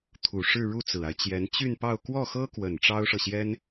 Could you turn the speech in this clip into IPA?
t̪ʰ u˨˩ ʂ ɻ̩˥˧ ɻ u˥˩ t͡s ɹ̩˨˩ a˦ ɪ̯ t͡ɕ j ɛ˧˥ n t͡ɕ y˥˧ n p ɑ˥˧ ʊ̯ k w ɔ˥˩ x ɤ˥ k w ə˨˩ n ʈ͡ʂ ɑ˥ ʊ̯ ʂ ɤ˨ ɕ j ɛ˥ n

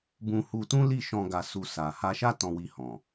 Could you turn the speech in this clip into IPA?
b ũ˧ h u˧ t ũ˦ l i˦˨ ʃ ɔ̃˧ ɡ a˧ s u˧ s a˨ h a˧ ʃ a˦ t ɔ̃˧ w i˧ h ɔ̃˨

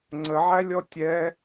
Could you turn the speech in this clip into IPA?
ŋ͡ǀ ə ʕ æ lʲ ɔ tʲ ɛ

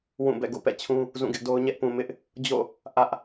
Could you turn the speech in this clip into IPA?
w ũ˦˨ b ɛ̰˦˨ ɡ o̰˦˨ p ɛ̰˦˨ t͡ɕʰ ũ˦ | z ũ˦˨ ɡ ɪ˦ ʔ d o˦ ʊ̯ ɲ ɛ˦ ʔ p ũ˨ m ɪ˦ ʔ | d͡ʑ o̰˦˨ | ʔ ä˦ ʔ

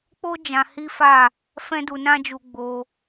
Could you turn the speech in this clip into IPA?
k͡p o˦ d͡ʒ ã˧ h i˦ f a˦˨ | f ɛ̃˦ d u˧ n ã˦ d͡ʒ u˧ ɡ͡b o˧

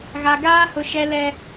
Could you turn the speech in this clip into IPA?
ɣ a˨ ɡ aː˦ h ʊ˨ ʃ ɛ˨ l ɛ˨

